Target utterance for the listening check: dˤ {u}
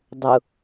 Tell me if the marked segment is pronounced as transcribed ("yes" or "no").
no